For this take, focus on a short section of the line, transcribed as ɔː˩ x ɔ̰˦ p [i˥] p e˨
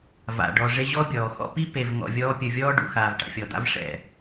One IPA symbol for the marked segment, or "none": i˥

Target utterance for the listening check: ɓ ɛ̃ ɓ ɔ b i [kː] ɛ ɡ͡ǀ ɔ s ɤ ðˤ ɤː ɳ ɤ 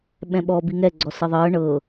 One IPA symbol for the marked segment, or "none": ŋ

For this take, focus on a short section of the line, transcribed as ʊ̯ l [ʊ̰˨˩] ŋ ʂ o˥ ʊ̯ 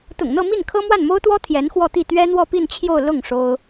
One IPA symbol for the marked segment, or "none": ʊ˥˩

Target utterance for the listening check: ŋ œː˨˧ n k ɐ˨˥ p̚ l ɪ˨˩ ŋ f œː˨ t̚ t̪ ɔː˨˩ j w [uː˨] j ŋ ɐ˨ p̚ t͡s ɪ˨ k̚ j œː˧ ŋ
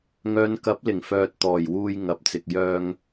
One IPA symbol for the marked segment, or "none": uː˨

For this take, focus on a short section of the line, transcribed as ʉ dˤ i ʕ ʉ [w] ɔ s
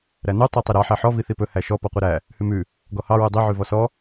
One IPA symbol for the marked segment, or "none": v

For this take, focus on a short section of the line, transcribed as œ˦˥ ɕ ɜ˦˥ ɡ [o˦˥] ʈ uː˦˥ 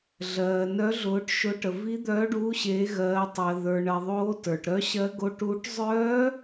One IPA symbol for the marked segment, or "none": o˦˥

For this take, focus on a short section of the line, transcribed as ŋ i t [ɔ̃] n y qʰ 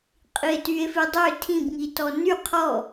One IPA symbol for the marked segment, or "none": ɔ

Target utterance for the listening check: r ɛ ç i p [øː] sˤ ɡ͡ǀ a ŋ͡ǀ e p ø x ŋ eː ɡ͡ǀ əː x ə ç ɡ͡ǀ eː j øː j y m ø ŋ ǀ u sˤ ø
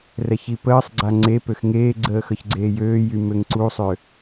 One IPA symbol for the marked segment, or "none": əː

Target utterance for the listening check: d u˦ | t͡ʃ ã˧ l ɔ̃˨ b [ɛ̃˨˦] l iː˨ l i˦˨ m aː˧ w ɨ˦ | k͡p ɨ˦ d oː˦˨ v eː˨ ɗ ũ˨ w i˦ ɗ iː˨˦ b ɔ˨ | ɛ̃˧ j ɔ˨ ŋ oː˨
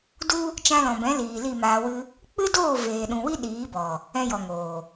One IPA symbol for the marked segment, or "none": ɛ̃˨˦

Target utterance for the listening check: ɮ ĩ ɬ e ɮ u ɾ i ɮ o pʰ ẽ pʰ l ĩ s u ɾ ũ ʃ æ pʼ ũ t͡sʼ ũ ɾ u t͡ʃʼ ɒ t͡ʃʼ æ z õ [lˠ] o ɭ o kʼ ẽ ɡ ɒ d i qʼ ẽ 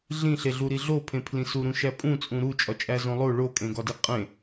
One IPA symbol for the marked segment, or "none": lˠ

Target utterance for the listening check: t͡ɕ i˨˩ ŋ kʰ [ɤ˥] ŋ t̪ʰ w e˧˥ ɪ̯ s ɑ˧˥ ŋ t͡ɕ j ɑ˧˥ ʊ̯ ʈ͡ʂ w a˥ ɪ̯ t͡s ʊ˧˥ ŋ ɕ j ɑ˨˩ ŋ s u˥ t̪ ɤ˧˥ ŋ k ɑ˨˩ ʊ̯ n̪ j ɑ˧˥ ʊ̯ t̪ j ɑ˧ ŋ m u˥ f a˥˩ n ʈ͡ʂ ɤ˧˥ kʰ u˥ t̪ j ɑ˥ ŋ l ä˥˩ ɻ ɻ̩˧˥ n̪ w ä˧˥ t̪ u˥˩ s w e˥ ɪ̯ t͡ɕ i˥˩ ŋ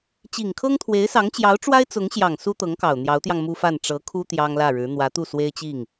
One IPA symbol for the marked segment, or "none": ɤ˥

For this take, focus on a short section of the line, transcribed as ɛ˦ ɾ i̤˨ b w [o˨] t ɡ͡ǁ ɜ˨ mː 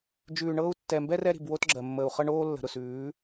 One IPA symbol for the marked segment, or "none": o˦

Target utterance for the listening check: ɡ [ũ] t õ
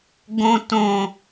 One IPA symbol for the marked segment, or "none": õ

